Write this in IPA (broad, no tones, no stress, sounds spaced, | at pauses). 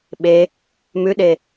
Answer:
ɓ e | m ʉ ɗ e